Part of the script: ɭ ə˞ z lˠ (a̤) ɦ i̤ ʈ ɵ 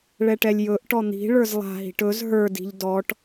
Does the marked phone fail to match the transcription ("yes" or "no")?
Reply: no